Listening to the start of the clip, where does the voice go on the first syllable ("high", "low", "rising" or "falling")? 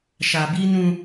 low